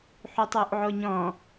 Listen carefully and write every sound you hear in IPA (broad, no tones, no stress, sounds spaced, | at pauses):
ħ u tˤ u ʔ ʕ o ɲ ɔ̃